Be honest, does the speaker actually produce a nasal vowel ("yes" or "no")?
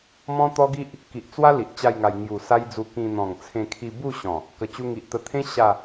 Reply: yes